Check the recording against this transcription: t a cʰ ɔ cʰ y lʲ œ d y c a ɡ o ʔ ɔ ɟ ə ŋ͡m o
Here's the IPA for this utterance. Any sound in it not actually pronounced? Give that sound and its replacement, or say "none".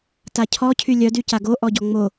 ə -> ɔ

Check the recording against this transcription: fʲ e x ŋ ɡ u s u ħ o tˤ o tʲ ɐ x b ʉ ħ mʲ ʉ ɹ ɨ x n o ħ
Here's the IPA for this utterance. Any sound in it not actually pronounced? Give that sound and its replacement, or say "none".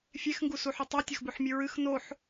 none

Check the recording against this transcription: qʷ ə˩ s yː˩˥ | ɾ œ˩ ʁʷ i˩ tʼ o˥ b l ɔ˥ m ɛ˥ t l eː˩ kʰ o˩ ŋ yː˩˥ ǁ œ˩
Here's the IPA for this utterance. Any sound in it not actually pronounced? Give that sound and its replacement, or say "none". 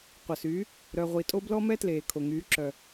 none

